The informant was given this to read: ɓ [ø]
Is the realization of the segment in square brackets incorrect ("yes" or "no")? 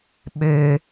no